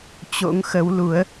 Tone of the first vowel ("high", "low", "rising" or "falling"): rising